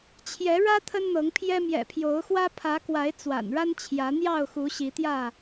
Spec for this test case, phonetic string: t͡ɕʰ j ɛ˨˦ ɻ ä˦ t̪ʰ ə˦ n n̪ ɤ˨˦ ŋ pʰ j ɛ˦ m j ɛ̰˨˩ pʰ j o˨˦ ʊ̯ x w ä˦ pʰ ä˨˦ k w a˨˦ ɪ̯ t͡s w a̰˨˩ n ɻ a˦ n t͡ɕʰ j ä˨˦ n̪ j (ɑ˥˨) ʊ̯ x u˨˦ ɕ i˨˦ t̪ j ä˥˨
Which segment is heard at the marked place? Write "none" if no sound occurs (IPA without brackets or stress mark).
ɑ˥˨